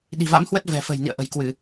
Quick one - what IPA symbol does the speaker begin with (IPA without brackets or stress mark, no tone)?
ɗ